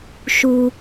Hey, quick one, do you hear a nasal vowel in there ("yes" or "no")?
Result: no